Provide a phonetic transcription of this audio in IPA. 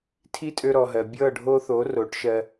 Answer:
tʰ i˦ tʼ ø˧ ɾ ɔ˨ ɦ ɜ˨ bʲ ɤ˦˨ ɖʱ o˧ θ o˨˦ r o˨˦ ʈ ʃ ɜ˧

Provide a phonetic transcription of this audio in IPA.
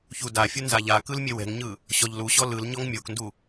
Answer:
ç u d a fʲ u n z a ʎ a k ɯ l mʲ e w ɛ̤ ŋ ɲ ɯ | ɕ ɔ ʎ l u ɕ ɔ l ɯ l ɲ ɔ ŋ mʲ o k n d u

